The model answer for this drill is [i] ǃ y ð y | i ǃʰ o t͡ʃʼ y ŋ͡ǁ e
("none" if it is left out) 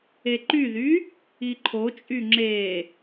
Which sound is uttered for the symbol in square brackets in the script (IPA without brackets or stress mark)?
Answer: e